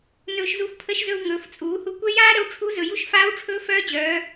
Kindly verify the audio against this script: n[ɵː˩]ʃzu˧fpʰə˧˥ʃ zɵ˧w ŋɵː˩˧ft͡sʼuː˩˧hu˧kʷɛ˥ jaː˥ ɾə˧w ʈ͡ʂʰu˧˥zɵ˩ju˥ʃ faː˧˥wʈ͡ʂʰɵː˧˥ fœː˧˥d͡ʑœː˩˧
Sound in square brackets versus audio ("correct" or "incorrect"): incorrect